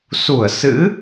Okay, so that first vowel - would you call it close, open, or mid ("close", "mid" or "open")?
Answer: close